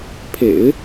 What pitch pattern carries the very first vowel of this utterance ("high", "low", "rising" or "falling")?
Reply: low